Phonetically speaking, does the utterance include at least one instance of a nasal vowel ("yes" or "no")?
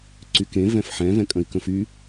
yes